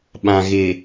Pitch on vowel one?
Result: low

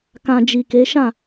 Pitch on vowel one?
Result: low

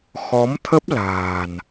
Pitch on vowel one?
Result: rising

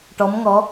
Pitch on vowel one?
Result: rising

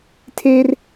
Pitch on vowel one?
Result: high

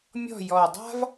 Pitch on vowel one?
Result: falling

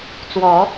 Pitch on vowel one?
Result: rising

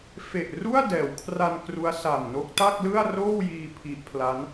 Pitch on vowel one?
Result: low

